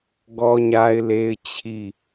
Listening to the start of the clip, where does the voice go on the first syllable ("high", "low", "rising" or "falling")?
high